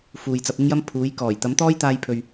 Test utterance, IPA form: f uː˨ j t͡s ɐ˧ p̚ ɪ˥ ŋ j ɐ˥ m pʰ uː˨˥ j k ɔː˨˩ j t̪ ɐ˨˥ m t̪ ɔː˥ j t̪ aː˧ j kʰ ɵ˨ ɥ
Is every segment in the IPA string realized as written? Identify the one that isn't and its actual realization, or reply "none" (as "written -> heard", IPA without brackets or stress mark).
kʰ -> pʰ